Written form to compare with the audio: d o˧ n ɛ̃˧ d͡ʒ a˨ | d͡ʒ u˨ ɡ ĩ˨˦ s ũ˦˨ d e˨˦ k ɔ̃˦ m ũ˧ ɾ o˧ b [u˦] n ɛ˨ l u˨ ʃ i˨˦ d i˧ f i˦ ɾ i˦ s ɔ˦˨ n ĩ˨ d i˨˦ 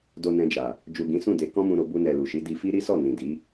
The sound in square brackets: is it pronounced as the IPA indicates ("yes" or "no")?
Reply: no